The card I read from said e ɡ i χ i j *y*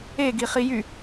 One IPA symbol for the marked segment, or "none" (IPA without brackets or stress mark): y